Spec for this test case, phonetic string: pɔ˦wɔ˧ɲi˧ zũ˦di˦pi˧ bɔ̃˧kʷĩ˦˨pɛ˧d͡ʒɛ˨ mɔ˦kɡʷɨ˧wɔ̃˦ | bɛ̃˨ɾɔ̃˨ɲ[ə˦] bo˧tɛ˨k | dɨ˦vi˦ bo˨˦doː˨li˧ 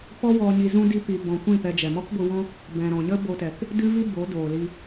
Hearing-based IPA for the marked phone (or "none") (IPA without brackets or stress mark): ə˦